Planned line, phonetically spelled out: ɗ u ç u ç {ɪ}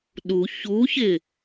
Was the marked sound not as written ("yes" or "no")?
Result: no